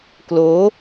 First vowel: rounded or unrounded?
rounded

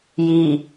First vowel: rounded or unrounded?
unrounded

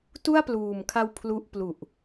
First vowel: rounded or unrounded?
rounded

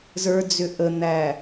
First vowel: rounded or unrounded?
unrounded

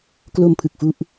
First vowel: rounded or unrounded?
rounded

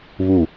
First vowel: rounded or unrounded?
rounded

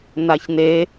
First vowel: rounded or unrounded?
unrounded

